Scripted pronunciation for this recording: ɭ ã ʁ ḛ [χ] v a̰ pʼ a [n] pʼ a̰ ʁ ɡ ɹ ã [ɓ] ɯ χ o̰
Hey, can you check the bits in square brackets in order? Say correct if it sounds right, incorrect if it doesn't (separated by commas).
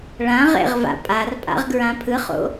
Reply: incorrect, incorrect, incorrect